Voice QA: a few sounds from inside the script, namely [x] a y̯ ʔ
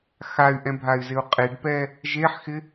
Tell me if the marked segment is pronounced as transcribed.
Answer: yes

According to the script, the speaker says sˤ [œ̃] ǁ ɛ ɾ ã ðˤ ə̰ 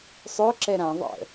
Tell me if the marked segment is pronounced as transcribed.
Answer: no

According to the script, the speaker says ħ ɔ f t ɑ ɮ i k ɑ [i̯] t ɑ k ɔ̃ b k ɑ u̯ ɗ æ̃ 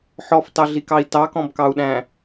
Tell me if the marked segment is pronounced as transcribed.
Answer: yes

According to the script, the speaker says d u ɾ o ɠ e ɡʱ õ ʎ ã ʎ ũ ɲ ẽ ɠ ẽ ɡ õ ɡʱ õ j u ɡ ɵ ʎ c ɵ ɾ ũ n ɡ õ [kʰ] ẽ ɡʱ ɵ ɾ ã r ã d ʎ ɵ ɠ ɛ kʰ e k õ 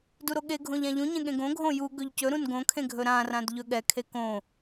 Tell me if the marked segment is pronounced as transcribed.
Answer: yes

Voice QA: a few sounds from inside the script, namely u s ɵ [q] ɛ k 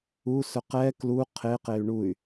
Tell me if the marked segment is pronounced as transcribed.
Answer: yes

